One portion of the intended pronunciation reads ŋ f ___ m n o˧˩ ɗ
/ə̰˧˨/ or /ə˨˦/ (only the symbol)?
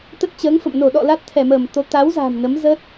ə̰˧˨